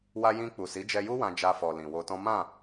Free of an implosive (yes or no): yes